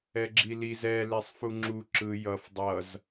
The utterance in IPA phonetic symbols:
ɛ ɡ͡ǁ i l i z ɛ l e sˤ f u ŋ͡ǁ u ǁ ɯ j ʌ f dˤ ʌ z

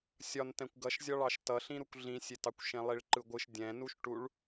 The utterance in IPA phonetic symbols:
sʲ ɒ n t ɛ̃ kʷ ɡ ʌ ʃ zʲ ɒ ɭ ɑ ʃ t ʌ ɬ ĩ ɾ u kʷ ɮ ĩ sʲ e t ɑ kʷ ʃ ẽ lˠ i ɭ ǃ ɯ ɡʷ ɯ ʃ dʲ ɛ̃ n u ʃ ʈ u ɭ

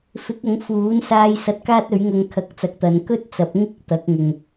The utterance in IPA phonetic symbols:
f ɪ˨˥ k̚ ɐ˨˥ ŋ f uː˨˥ n s aː˧ j s ɐ˧ t̚ k aː˥ t̚ ɵ˨˥ ɥ ŋ ɐ˧ ŋ kʰ ɐ˨˥ k̚ t͡s ɐ˨˥ k̚ t̪ ɐ˨˧ n k ɵ˥ t̚ t͡s ɐ˨˥ p̚ ŋ ɪ˥ k̚ t̪ ɐ˨˥ k̚ ŋ ʊ˨ ŋ

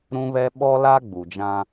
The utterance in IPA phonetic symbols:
ɾ ũ˦ β ɛ˦ ɓ ɔ˦ l a˦ ɡ͡b u˨ d͡ʒ ã˦

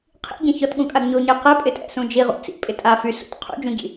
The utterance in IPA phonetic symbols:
qʰ ḭ ɟ ɐ̃ ç ɔ t ɠ ũ kʼ a ɡ ɲ o ɲ e q ɛ pʼ ɪ tʼ ɛ̰ s ũ d͡ʒ i ʁ ṵ t͡s ḭ pʼ ɪ tʼ a f y s ṵ t qʰ ṵ d͡ʒ ũ ɟ ḭ

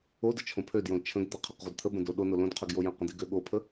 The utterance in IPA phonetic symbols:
o d ə t͡ʃʰ õ pʰ ø d j õ l t͡ʃʰ ə̃ ɡ d̪ ə qʰ ə q ʁʷ ə d t̪ʰ ə b ə̃ d o ɗ o n o l õ d qʰ ø ɡ j o j ə̃ q ə̃ d i ɡ ø ɠ o pʰ ə

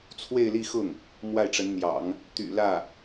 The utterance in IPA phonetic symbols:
t͡sʰ w e˥˧ ɪ̯ l i˥˧ x ʊ˥˩ ŋ | m w a˥˩ ɪ̯ ʈ͡ʂ ə˧˥ n n̪ j ɑ̰˨˩˦ ŋ | t̪ y̰˨˩ l ä˥˩

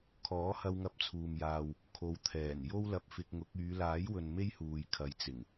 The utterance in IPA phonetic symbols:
kʰ ɔː˨˥ h ɐ˧ w ŋ ɐ˧ p̚ t͡sʰ uː˨ m j aː˨ w | kʰ o˨ w t̪ʰ ɛː˨˩ n j o˥ w l ɐ˧ p̚ f ɪ˧ k̚ ŋ ʊ˨˥ k̚ yː˨˧ l aː˨˥ j w ɵ˨ n m e˥ j h uː˨ j kʰ ɐ˨ j t͡s ɪ˨˩ ŋ

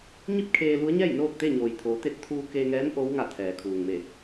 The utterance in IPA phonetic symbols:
ɲ i˥˨ p̚ kʰ eː˧ l u˧˥ ə̯ ɲ ɛː˥˨ j n oː˥˨ k̚ t̪ e˥˨ ɲ oː˩ j t̪ʰ oː˩˧ t̪ e˧ t̚ t̪ʰ uː˧ k e˧ ŋ ɛː˧˥ n ʔ o˧˥ w ŋ a˧˩ t̪ʰ ɛː˩ kʰ uː˩ ŋ m e˧˩

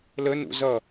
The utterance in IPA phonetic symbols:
l ə n ṵ z ʌ

